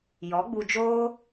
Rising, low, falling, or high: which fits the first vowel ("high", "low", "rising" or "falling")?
rising